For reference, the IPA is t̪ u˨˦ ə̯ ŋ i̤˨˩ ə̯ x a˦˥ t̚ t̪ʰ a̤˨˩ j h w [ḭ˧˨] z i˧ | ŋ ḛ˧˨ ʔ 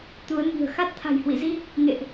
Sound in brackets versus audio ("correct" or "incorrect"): correct